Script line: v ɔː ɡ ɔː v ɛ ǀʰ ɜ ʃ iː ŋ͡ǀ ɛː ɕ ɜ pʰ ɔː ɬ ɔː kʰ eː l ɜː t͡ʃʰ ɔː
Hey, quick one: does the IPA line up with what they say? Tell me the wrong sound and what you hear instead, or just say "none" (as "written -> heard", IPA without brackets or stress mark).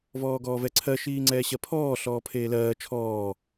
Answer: kʰ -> pʰ